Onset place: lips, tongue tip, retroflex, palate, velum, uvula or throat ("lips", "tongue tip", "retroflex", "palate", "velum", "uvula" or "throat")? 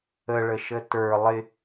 retroflex